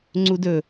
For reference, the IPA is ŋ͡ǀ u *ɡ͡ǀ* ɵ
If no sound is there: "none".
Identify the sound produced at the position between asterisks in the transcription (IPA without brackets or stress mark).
d